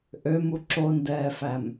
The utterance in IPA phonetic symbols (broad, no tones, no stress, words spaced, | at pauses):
ʔømu ǁondɛːfæm